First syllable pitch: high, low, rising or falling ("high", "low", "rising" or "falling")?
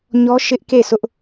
high